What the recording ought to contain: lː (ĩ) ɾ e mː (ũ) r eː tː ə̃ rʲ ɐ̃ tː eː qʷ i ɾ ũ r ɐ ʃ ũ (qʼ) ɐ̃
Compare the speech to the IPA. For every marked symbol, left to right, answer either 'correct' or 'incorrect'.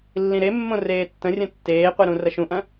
correct, incorrect: õ, incorrect: ʔ

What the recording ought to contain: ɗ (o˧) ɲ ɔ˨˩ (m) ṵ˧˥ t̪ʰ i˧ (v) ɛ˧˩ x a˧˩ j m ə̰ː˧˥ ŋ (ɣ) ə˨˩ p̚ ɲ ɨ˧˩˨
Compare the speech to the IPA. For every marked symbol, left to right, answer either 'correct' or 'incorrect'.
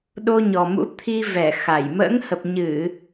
correct, correct, correct, incorrect: h

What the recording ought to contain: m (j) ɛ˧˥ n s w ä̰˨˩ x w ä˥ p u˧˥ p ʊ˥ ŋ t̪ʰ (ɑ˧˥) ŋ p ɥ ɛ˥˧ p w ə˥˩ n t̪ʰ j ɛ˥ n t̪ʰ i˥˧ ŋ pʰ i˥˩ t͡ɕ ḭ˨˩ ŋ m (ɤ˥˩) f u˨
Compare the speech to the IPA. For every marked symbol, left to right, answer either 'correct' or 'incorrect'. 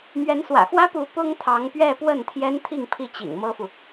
incorrect: ɥ, correct, incorrect: ɤ˥

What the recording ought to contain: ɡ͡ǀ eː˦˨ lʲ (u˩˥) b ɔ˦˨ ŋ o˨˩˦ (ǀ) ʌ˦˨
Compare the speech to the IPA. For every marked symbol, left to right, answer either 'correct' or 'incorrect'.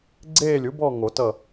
correct, incorrect: t

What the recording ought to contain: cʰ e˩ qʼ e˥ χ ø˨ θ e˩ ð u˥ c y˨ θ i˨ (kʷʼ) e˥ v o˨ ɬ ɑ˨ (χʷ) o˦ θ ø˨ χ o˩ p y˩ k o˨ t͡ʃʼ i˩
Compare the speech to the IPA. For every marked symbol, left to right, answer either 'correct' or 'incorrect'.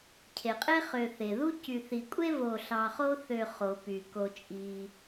correct, incorrect: χ

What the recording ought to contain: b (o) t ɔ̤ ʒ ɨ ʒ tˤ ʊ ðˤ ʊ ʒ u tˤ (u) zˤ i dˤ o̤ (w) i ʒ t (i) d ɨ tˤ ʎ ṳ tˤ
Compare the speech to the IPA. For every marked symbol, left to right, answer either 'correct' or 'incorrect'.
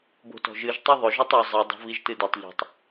incorrect: o̤, correct, incorrect: v, incorrect: ɨ

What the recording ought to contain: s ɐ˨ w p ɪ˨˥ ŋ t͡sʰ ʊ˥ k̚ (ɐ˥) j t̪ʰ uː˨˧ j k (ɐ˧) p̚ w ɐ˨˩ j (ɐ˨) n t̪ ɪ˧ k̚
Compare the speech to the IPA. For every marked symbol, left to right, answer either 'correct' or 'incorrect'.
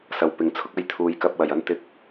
correct, correct, incorrect: ɐ˥

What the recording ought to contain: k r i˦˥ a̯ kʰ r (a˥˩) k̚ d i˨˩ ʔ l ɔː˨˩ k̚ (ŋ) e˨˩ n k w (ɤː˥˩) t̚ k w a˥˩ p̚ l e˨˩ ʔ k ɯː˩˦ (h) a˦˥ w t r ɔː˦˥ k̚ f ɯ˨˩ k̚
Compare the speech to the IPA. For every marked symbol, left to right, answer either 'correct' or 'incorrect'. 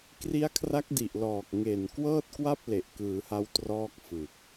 incorrect: a˦˥, correct, correct, correct

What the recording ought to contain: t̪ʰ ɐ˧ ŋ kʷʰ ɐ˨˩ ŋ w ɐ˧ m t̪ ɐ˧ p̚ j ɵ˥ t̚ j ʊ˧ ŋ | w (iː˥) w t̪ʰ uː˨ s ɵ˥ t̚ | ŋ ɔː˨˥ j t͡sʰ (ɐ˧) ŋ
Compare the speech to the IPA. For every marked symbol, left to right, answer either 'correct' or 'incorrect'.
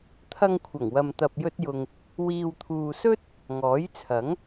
incorrect: iː˨, incorrect: ɐ˨˥

